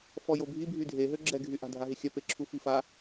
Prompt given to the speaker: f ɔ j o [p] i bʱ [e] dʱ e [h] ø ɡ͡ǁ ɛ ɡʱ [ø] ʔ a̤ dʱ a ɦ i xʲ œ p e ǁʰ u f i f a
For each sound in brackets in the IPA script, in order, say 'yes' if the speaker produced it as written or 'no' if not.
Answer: no, no, no, no

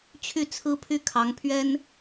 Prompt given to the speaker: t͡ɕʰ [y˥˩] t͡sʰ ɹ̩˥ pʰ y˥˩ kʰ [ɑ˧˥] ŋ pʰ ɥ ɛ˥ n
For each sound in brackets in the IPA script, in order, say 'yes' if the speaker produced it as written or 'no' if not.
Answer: yes, yes

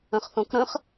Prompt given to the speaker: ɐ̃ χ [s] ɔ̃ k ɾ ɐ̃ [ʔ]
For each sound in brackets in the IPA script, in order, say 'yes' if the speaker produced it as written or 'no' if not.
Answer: no, no

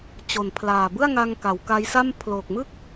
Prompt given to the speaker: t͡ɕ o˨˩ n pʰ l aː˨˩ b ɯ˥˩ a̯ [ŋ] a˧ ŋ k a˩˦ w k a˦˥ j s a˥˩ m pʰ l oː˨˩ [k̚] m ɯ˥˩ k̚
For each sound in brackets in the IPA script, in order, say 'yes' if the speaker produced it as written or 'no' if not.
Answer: yes, yes

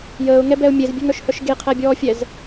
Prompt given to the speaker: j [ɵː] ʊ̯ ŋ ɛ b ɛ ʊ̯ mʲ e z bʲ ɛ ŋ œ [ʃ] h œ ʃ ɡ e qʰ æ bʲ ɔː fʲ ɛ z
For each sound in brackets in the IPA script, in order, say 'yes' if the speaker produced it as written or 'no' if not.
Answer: no, yes

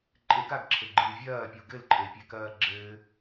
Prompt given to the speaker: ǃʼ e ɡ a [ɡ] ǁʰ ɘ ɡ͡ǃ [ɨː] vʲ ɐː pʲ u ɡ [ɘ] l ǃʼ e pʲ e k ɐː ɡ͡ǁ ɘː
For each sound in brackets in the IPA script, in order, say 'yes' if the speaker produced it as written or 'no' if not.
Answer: yes, yes, yes

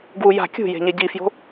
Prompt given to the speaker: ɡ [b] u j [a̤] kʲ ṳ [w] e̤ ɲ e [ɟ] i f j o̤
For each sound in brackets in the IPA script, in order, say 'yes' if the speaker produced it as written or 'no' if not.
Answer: no, yes, no, yes

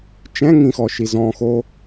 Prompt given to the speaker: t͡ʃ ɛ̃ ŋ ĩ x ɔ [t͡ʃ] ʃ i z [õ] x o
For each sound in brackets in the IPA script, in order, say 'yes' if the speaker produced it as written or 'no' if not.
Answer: no, no

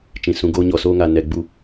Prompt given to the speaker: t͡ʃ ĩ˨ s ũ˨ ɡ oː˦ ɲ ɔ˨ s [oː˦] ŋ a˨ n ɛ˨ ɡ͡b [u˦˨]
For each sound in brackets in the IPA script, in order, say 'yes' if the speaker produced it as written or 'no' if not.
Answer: yes, yes

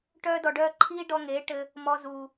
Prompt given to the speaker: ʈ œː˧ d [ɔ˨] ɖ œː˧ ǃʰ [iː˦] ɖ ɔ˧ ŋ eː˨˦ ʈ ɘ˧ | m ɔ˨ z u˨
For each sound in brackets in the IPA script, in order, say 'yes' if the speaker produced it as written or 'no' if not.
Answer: yes, yes

